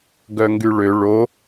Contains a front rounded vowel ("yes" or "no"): yes